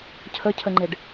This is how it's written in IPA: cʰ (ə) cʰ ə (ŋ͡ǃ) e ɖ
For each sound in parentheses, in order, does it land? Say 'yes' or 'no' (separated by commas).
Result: yes, yes